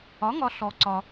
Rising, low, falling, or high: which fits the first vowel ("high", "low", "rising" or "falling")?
rising